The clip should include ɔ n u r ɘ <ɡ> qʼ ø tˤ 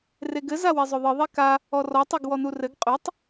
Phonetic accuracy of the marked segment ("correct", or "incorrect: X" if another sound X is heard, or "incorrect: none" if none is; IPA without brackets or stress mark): correct